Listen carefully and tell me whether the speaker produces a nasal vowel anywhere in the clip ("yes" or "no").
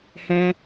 yes